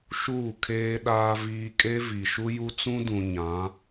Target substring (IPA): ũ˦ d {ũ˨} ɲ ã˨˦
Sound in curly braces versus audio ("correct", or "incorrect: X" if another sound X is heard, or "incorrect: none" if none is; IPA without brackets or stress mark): correct